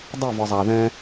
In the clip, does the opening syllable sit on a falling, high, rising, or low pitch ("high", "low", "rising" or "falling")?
falling